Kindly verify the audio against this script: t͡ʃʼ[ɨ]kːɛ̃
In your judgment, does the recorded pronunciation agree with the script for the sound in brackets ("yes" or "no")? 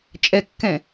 no